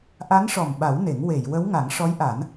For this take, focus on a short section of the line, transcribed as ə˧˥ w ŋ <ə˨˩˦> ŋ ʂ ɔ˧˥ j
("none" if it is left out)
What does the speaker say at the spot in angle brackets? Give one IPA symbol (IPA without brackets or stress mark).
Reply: a˨˩˦